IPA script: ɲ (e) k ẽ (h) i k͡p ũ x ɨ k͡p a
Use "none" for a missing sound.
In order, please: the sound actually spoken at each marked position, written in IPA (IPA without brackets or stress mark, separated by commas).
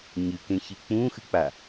ɨ, ç